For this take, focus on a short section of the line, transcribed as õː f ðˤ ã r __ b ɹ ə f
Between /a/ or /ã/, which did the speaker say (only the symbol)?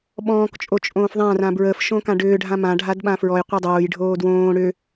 ã